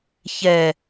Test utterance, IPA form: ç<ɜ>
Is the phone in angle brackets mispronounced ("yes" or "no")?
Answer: yes